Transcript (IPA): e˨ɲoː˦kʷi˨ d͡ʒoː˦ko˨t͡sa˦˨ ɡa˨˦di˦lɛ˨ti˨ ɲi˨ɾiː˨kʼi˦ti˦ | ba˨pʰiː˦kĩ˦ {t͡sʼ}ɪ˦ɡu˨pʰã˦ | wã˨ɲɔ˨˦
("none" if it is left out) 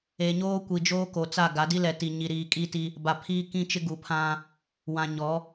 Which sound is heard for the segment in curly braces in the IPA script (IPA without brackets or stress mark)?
t͡ʃ